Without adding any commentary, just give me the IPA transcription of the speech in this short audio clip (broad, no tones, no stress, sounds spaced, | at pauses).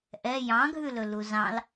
ʔ ɛ j ɑ̃ ɡʱ ʉ l ɵ l u z ɑ̃ l